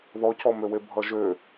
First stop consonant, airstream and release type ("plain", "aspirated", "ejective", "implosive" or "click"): plain